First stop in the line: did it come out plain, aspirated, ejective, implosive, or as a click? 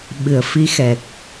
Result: implosive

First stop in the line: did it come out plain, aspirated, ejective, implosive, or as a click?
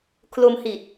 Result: aspirated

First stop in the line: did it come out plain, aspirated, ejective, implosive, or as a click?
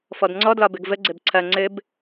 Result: plain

